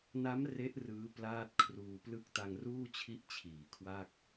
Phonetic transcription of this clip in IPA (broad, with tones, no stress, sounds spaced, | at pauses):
n a˦˥ m r e˦˥ ʔ r ɯː˦˥ p l aː˥˩ t̚ kʰ r uː˧ p l ɯ˥˩ k̚ t a˧ ŋ r uː˥˩ t͡ɕʰ i˦˥ ʔ t͡ɕʰ iː˩˦ kʰ w a˥˩ k̚